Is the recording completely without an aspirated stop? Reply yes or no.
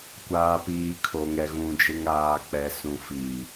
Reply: no